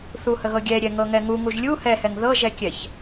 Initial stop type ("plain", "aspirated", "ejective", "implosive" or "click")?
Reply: plain